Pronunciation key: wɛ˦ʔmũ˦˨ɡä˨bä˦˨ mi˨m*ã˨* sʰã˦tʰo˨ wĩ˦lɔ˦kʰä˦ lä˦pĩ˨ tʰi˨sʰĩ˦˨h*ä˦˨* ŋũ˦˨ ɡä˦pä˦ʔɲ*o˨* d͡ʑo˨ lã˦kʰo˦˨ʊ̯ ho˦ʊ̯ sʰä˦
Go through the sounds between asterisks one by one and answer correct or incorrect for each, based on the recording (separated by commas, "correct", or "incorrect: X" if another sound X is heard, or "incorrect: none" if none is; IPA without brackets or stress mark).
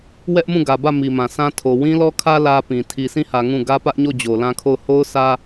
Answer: correct, incorrect: ä˨, incorrect: o˦˨